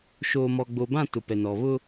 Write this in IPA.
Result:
ʃ oː˨ m ɔ˨ ɡ͡b o˨ b ã˦˨ t ʊ˨ p ɛ˨ n ɔ˨ β ʊ˦

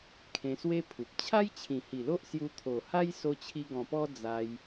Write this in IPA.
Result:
kʰ ẽ˧ s w e˦ pʰ u˨ p̚ t͡ɕʰ a˦ j t͡ɕʰ ĩ˨˩ h i˨˩ l o˦ ʔ s j u˧ t̪ʰ o˨˩ h a˦ j s o˧ t͡ɕʰ i˧ ɡ ɔ̃˨˩ p ɔ˦ d͡z a˧ j

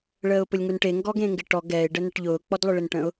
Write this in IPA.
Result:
ɭ əː ʊ̯ p ʊ lʲ ŋ u n ʈ e ŋ ɡ ɔ ɡ ẽ ŋ ɡ ɪ ʈ ɔ ɡ ɛ ɪ̯ ɖ ə n ə ʈ ʎ ʊː k͡p ɔ d lˠ ʊ ɭ ɪ n ʈ ə̃ ʊ̯

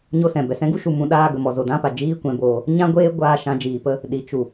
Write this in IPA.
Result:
ɲ o˧ s ɛ̃˨ b ɛ˨ s ɛ̃˧ ɡ u˦ ʃ u˨ m ũ˧ ɗ aː˧ ɡ ə˨ m ɔ˨ z o˨ d ã˦ p a˨ d͡ʒ iː˦ kʷ ɛ̃˨˦ b oː˧ | ɲ ã˧ ɡʷ eː˧ ɡʷ aː˧ ʃ ã˨˦ d͡ʒ iː˨ p ə˦ | ɗ i˨ t͡ʃ u˨

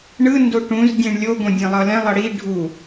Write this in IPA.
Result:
ɳ ɯ n d o ʈ ũ z dʲ ẽ ɳ lʲ o ɡ õ dʲ ẽ lˠ ʌ l ɛ̃ lˠ ʌ ɽ i ɖʱ u

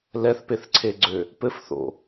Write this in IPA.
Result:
l ɛ θ p e θ ǀʰ e ɡ͡ǀ ø | p ɘ f θ o̰

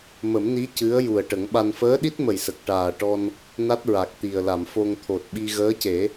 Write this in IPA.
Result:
m ə˨˩˦ m n i˧˥ c ɨ˧˥ ə̯ j u˨˩ ə̯ ʈ ə˨˩˦ ŋ ɓ a˧ n f əː˧˥ ɗ i˦˥ t̚ m ə˨˩ j s ə˨˩ k̚ ʈ aː˨˩ ʈ ɔ˧ n | n a˦˥ t̚ ɹ a˨˩ k̚ t̪ i˨˩ ə̯ l a˨˩˨ m f o˧ ŋ t̪ʰ o˨˩ t̚ ɓ i˧ ɣ əː˧˥ c e˨˩˦

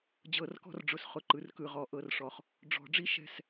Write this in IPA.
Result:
d͡ʑ ɤ˨˩˦ r k ɔ̤˦ r ɖ͡ʐ ʊ˩˥ s χ ʊ˩˥ ǃ ɯ˩˥ r k ɯ˨ ʁ ɔ˨˩˦ ʔ ɤ˨ r ʂ ɔ˨ χ | ɖ͡ʐ ɔ̤˨˩˦ ɖ͡ʐ i˦ ʃ ɛ̤˦˨ s

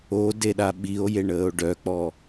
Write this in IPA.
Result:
o d e ɗ a ɓ i o̯ j e ɳ əː o̯ ɖ œ k͡p ɔ

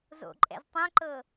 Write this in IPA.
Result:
z o̰ ǃʼ ɛ̰ z tˤ ɛ̃ ǃ ɤ

